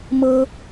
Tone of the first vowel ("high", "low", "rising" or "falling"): high